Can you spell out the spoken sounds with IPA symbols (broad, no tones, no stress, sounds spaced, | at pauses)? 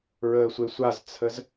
ɹ əː sʷ e sʷ a z t͡sʰ ə z